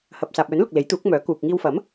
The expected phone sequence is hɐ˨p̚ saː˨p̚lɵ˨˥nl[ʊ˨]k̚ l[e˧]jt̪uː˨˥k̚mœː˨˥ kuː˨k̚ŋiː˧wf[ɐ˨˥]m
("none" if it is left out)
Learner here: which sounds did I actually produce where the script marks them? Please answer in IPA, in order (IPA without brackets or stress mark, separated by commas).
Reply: ʊ˨, e˨˥, ɐ˨˥